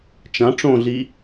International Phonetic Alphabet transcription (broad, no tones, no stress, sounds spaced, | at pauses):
t͡ʃ ã ʈ͡ʂ õ ɮ i